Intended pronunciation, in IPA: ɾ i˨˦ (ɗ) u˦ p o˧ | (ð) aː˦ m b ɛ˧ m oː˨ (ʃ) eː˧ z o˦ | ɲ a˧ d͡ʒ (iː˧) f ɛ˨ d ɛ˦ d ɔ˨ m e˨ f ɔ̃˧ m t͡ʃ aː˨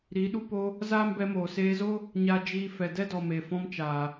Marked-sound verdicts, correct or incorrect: correct, incorrect, incorrect, correct

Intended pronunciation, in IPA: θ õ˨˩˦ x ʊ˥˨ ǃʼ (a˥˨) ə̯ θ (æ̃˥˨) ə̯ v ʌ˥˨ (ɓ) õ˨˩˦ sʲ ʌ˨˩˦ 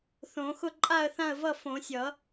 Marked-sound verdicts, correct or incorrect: correct, incorrect, incorrect

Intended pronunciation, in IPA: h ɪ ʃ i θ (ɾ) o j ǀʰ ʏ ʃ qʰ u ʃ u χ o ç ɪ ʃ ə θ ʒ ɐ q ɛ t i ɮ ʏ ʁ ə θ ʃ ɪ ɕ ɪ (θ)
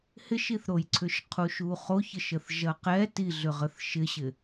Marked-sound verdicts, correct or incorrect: correct, incorrect

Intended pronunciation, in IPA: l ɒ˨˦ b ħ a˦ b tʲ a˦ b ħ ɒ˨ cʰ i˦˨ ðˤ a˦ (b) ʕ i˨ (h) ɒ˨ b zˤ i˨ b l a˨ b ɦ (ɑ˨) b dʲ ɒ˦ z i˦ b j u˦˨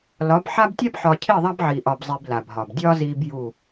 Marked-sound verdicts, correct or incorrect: correct, incorrect, incorrect

